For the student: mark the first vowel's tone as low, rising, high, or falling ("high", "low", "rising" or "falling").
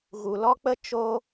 low